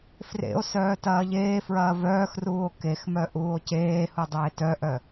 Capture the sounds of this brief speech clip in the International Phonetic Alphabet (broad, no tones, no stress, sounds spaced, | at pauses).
f r ḛ o̯ s œː t ɐː ʎ eː f ɹ ɐː v œː x r uː o̯ k e x m œ ʔ uː o̯ c eː h u dˤ eː t œ ʔ œ